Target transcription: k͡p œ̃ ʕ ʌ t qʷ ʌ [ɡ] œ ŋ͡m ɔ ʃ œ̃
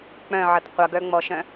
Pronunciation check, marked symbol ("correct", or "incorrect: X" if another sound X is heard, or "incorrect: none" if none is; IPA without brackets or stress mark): correct